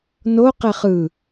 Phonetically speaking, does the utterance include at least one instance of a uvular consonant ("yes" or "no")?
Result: yes